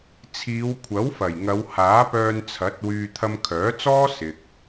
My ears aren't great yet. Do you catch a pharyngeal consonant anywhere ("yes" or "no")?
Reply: no